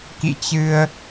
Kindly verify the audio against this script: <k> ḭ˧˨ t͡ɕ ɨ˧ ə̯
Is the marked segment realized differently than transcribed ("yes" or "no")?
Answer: no